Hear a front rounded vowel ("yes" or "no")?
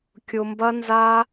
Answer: no